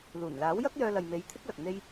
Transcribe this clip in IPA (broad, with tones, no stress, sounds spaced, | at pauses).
l uː˨˩ n l aː˨˥ w j ɐ˥ k̚ j œː˧ l ɐ˨ j m e˨˧ j t̪ʰ ɪ˥ k̚ l ɐ˨ k̚ n̪ e˥ j